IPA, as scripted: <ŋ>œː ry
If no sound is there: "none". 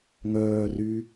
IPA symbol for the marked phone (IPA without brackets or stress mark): ŋ